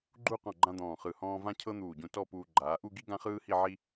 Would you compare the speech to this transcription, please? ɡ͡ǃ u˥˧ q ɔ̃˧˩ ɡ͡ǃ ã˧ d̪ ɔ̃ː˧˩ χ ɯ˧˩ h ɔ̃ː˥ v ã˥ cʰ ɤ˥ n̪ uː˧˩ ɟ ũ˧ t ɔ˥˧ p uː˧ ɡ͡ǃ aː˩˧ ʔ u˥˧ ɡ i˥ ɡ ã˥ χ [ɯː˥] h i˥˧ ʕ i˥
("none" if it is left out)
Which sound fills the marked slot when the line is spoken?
ɯː˥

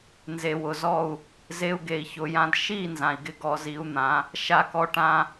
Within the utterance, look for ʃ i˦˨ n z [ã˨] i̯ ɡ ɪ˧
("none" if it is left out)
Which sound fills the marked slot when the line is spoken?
ã˨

